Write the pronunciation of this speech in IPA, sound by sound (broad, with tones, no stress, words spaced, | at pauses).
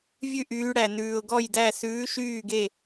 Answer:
vʲʉ˥˨ ʔyː˧˥ɽæ˨ nʉː˨ʊ̯ɡɔ˥˨jdæ˥˨ sʉː˧˥ʃyː˥˨ɡe˥˨